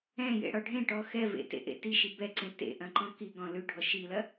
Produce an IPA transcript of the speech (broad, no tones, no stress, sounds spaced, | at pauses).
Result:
ɛ̃ j ḛ ɽ ɔ ɖʱ ẽ ʈ ɔ x ɛ v ḛ t ḛ ʔ ḛ t i ʃ i b ɛ ǀ ẽ t ḛ ʔ ɐ̃ ǃ ɔ̃ k i ɡ ɔ̃ l ʉ ɖʱ ɔ ʃ i l ɐ